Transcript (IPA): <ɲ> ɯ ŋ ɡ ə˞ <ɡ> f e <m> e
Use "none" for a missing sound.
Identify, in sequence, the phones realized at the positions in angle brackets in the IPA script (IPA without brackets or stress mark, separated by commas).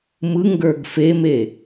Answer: m, ɡ, m